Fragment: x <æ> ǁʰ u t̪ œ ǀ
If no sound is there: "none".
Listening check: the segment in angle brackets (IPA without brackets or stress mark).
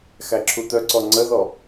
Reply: æ